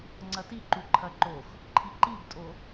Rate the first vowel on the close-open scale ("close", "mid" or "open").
open